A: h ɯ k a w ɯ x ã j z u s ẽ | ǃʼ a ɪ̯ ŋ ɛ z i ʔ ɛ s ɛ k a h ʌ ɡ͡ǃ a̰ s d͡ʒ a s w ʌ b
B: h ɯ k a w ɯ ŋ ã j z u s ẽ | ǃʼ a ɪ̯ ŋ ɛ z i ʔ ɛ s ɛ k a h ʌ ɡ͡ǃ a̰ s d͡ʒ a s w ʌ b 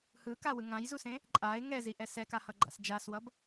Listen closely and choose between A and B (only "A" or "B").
B